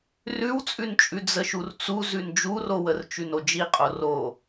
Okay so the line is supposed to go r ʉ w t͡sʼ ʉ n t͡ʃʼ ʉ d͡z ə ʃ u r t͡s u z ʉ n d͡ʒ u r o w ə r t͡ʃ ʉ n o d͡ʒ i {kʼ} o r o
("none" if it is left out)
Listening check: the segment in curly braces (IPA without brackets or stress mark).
qʼ